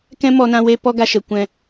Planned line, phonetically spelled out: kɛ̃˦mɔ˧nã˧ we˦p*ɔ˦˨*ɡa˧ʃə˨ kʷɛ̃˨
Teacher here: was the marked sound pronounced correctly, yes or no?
no